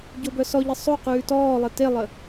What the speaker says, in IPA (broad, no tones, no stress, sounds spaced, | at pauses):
ɟ o b œ s ɔ ʎ ə sˤ o q ʉː t ɔː lˠ e t e lˠ ə